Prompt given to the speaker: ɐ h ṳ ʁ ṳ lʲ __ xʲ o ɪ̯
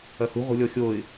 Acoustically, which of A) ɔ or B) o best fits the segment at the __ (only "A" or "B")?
A